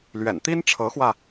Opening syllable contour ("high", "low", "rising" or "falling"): low